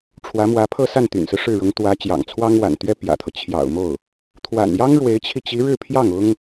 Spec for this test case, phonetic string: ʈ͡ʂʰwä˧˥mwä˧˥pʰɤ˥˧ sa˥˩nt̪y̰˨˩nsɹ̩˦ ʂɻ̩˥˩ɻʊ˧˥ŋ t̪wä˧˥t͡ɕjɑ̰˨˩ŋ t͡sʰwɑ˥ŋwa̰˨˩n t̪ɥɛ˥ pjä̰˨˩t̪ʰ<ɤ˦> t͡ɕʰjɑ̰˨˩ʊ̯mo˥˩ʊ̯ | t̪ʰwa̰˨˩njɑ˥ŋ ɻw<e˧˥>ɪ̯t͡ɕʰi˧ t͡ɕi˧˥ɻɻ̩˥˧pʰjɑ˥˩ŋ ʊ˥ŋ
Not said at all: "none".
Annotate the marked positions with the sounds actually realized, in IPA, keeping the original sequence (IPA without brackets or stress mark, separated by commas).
ɤ˦, e˧˥